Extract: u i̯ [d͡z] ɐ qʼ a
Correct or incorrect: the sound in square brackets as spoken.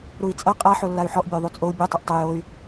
incorrect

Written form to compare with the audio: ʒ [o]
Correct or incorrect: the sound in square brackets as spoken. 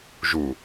incorrect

